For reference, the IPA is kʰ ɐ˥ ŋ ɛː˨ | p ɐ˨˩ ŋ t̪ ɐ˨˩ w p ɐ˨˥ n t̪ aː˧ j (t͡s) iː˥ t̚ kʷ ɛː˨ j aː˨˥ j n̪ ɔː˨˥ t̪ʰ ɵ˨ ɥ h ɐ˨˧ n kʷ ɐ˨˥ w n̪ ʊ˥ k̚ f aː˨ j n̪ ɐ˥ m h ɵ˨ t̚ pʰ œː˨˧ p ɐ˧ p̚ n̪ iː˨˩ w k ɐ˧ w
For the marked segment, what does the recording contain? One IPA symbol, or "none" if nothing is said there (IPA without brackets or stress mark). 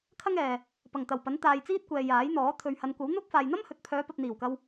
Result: t͡s